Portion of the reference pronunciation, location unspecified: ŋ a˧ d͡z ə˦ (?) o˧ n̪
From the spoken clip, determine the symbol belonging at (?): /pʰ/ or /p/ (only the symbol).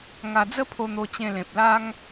pʰ